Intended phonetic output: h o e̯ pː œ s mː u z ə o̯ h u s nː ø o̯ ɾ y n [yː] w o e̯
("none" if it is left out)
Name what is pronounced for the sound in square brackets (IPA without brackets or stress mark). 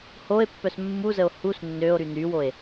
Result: y